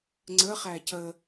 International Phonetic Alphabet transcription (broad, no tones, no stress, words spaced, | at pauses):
ŋ͡ǀəχæ cə